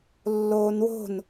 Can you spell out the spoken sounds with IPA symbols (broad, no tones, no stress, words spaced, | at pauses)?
lːoːnwo̤n